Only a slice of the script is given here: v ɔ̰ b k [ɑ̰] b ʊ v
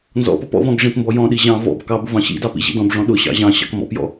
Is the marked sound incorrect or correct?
incorrect